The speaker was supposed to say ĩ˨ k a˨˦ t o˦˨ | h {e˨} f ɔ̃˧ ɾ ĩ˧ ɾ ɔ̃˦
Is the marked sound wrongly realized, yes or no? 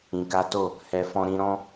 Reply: yes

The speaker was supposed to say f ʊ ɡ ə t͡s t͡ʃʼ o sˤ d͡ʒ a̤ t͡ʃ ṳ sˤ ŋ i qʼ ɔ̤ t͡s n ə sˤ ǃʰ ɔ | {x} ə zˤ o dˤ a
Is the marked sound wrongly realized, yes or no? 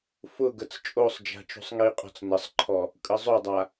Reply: yes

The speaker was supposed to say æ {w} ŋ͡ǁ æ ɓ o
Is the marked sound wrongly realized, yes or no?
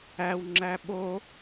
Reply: no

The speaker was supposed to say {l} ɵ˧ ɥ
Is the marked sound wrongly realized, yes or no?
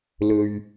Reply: no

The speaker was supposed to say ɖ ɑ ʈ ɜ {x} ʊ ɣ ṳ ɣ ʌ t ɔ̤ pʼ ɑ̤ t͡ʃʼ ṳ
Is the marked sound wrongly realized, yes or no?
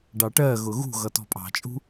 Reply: yes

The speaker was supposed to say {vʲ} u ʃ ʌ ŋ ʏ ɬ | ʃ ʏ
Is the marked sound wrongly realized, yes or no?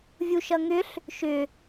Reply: no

